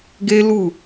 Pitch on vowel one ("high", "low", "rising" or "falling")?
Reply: high